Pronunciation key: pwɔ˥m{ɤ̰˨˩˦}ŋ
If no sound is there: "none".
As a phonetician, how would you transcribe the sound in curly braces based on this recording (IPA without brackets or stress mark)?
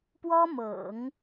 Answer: ɤ̰˨˩˦